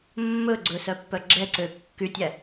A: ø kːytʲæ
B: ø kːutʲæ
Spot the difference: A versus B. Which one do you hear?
A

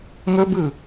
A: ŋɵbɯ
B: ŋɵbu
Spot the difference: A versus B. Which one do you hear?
A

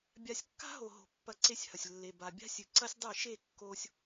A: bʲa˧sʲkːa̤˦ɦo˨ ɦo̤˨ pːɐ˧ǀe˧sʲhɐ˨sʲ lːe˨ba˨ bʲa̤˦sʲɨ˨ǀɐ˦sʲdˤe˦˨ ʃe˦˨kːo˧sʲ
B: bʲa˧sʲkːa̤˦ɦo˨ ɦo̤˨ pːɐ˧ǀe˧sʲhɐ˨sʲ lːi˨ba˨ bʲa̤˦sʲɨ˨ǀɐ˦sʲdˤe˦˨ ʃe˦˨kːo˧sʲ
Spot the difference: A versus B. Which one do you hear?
A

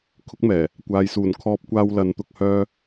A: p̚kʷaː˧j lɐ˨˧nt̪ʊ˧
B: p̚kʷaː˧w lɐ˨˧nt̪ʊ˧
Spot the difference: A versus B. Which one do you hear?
B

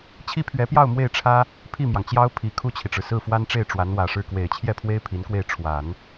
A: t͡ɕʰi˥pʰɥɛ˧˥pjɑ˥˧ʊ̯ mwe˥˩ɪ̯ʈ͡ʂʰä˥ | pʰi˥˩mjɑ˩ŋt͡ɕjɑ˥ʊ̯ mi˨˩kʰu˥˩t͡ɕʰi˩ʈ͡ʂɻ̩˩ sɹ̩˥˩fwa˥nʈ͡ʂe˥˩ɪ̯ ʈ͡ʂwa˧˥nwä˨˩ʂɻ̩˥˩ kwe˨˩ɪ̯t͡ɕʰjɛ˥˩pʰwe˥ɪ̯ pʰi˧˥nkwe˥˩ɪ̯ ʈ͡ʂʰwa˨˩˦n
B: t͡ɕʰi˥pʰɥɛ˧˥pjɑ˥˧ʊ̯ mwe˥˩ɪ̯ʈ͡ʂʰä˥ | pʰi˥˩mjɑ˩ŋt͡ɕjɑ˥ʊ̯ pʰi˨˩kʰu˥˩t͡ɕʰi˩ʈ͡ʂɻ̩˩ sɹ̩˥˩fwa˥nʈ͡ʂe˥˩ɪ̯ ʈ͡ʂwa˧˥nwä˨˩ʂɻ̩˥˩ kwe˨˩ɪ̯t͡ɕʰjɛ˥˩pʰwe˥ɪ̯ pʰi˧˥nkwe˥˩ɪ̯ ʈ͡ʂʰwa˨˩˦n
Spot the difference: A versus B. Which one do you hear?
B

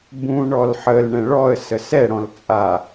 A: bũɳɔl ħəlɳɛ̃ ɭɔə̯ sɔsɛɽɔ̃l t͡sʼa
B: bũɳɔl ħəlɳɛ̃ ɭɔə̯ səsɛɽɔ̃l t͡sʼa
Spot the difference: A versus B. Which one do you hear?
B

